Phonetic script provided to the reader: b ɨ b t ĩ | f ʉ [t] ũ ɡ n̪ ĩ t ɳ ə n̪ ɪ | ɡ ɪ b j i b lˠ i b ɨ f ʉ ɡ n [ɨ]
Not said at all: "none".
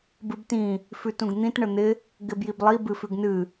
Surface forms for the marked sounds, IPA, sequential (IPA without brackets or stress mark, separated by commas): t, ɨ